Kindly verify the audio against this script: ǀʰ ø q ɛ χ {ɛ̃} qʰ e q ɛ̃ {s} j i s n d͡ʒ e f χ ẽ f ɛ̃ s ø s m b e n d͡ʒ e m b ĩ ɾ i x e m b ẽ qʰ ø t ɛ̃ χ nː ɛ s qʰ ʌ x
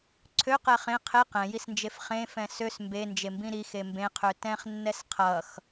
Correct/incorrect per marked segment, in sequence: incorrect, incorrect

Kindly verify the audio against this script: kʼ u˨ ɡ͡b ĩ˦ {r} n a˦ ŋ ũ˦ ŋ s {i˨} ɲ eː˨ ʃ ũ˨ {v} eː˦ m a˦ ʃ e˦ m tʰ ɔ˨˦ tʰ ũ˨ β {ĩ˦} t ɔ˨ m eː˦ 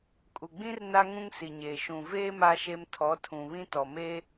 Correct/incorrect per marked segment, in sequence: correct, correct, correct, correct

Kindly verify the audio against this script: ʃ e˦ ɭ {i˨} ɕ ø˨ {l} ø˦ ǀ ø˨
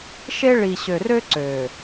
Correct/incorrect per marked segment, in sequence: correct, incorrect

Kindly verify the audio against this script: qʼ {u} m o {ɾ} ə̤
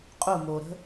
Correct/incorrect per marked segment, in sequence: correct, correct

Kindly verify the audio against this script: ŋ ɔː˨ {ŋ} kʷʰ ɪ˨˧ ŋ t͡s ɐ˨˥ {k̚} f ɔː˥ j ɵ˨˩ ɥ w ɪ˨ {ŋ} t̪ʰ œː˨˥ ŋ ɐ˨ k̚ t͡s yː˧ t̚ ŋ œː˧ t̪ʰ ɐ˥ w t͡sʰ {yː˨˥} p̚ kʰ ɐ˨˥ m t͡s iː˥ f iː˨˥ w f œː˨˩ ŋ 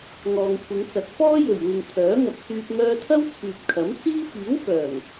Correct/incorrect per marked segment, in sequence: correct, correct, correct, incorrect

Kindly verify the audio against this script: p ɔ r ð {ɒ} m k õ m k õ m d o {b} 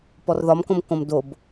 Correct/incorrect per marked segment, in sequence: correct, correct

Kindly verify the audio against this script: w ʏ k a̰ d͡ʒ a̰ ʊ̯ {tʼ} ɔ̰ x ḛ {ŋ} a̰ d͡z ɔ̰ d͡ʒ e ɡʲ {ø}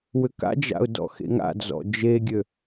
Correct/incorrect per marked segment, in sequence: incorrect, correct, correct

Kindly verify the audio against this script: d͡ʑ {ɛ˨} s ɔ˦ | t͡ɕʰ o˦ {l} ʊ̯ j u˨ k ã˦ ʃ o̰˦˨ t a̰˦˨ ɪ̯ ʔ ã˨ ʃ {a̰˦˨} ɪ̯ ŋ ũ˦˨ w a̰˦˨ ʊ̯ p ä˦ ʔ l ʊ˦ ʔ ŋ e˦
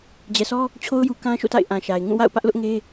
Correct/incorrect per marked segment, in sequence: correct, incorrect, incorrect

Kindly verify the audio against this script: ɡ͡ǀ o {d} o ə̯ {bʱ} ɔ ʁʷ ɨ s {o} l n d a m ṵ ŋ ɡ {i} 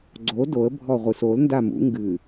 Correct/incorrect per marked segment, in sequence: correct, correct, correct, incorrect

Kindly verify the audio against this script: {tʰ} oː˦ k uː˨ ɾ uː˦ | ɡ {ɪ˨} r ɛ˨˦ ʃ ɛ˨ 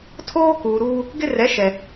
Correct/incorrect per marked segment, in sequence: correct, incorrect

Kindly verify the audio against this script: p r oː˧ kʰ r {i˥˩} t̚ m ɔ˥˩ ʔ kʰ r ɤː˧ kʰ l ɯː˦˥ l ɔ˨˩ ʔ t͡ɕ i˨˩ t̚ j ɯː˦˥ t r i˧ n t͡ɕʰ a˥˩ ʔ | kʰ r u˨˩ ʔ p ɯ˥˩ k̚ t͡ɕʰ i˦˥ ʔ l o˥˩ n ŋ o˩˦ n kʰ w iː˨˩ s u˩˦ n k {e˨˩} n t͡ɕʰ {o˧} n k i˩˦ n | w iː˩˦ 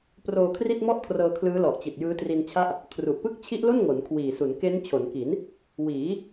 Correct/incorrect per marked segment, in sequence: correct, incorrect, incorrect

